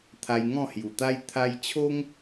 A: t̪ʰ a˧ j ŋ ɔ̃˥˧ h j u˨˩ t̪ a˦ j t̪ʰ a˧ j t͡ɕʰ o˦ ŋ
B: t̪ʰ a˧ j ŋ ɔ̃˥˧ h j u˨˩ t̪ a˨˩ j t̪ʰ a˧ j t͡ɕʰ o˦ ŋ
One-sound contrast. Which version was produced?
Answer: A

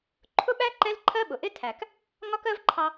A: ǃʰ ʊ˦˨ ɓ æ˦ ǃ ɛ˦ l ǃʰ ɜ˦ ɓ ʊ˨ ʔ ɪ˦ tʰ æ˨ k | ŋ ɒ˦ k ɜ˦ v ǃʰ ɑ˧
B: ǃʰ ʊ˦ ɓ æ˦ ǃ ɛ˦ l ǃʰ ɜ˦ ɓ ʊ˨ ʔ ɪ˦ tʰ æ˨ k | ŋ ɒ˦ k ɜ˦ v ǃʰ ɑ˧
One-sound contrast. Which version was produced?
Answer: B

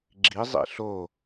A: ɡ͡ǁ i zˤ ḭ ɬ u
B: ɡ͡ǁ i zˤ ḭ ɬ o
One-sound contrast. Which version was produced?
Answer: B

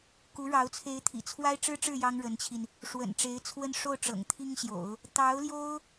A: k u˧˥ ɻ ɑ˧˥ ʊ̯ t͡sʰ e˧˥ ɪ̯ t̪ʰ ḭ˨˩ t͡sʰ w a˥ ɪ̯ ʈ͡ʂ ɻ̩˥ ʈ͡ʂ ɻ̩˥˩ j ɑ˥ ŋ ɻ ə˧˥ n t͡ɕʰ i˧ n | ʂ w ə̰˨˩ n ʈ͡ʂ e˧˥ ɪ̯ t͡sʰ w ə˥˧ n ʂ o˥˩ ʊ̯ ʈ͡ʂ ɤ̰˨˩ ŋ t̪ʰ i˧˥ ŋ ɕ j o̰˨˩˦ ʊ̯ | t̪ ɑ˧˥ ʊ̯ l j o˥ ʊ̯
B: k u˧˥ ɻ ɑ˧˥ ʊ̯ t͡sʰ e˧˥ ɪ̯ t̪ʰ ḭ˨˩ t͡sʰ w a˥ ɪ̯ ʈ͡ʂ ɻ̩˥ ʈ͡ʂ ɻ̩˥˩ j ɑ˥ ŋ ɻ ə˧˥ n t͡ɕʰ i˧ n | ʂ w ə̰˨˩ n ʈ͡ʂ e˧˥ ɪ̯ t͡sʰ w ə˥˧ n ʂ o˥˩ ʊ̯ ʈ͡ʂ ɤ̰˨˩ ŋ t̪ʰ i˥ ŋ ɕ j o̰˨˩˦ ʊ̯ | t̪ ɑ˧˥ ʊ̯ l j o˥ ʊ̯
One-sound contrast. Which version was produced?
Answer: B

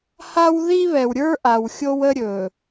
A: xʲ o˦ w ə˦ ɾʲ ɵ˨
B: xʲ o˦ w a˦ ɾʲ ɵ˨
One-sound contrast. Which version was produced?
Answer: A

